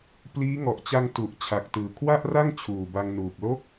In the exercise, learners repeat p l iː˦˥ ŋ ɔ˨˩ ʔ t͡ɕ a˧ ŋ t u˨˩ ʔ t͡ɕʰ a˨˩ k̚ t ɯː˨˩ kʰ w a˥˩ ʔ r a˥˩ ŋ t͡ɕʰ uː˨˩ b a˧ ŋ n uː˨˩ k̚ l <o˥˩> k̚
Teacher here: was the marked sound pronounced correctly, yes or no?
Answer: no